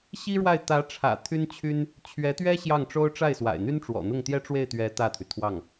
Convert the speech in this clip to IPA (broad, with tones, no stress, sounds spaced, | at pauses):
ɕ i˥ ɻ w a˥˩ ɪ̯ t̪ ä˧˥ ʈ͡ʂʰ ä̰˨˩ t̪ʰ y˥ n t͡ɕʰ y˥ n | t͡ɕʰ ɥ ɛ˧˥ t̪ ɥ ɛ˥ ɕ j ɑ˥˩ ŋ ʈ͡ʂ o˥ ʊ̯ ʈ͡ʂ a˥˩ ɪ̯ s w a̰˨˩ ɪ̯ n̪ y˥ n ʈ͡ʂ w ɔ̰˨˩ n̪ ʊ˥˩ ŋ t̪ j ɛ˥ ʈ͡ʂ w e˥˩ ɪ̯ t̪ ɥ ɛ˧˥ t̪ ä˥˩ t̪ʰ y˩ t̪ʰ w ɑ˥˩ ŋ